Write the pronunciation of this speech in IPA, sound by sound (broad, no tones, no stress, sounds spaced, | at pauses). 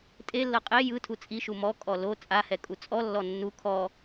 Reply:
tʼ e lː ɤ qʼ e j ɯ tʰ u t͡sʼ i ʃ u m ɔ kʼ ɔ l o t͡sʼ a h ɛ kʼ u t͡sʼ ɔ lː ɔ nː u kʰ ɔ